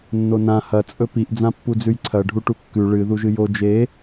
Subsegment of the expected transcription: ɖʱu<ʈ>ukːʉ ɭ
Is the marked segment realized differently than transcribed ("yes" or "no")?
no